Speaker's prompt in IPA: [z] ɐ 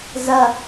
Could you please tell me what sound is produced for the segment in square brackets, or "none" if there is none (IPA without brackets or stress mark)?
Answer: z